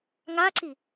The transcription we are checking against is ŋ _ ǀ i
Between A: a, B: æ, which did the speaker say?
A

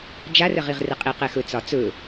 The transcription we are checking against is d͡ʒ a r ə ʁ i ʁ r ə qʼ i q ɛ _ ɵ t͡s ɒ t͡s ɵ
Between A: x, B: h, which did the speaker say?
A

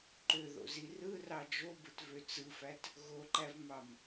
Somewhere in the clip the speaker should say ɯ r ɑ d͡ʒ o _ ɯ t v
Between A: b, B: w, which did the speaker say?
A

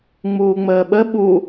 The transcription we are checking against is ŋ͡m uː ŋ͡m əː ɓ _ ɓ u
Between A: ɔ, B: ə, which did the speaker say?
B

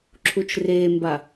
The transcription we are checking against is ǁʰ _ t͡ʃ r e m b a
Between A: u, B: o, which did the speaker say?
A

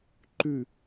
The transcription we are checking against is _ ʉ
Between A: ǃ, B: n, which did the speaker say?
A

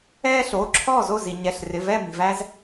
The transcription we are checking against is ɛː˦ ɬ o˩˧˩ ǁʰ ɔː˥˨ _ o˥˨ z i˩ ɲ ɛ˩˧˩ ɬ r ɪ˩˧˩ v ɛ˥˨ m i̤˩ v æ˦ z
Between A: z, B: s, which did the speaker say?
A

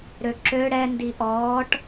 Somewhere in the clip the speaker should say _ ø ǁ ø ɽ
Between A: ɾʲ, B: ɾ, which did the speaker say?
B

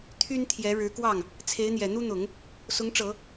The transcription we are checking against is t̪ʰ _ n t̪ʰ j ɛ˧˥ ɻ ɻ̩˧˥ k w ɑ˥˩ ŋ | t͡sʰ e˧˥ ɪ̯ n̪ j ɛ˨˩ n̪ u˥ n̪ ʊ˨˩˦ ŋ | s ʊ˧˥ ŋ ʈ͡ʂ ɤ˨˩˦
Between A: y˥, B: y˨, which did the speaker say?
A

